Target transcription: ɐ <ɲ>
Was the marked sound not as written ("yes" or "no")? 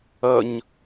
no